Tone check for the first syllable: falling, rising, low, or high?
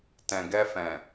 low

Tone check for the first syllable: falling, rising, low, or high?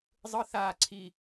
high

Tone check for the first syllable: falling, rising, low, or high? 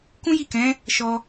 high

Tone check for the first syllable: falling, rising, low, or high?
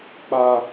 high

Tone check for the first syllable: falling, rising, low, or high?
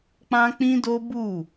high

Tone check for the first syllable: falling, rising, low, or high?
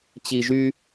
low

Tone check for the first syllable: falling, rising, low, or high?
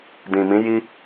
low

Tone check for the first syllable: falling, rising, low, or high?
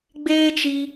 high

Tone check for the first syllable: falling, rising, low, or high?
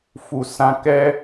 low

